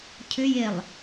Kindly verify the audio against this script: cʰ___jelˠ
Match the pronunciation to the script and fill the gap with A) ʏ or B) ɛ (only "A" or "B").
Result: A